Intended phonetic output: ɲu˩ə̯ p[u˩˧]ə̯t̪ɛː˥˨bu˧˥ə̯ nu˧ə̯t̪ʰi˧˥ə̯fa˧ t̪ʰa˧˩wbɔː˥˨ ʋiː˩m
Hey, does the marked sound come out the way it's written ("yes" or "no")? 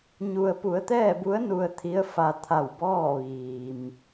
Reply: yes